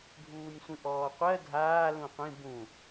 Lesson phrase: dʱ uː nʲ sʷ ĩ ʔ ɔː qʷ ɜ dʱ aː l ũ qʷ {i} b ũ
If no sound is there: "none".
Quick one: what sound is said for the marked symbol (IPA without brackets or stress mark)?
ĩ